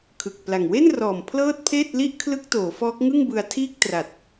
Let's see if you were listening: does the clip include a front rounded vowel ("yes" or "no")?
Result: no